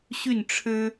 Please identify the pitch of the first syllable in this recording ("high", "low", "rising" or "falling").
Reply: falling